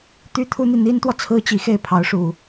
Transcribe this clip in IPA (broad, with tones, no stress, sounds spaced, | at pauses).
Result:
t̪ y˥ t̪ʰ u˥ n̪ i˨ n̪ i˥ n t̪ w ɔ˨ t͡sʰ ɹ̩˥ t͡ɕ i˧˥ x e˥˩ ɪ̯ pʰ ɑ˧˥ ʊ̯ ʂ u˨˩˦